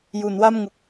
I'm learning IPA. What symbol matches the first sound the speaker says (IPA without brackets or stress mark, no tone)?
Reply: j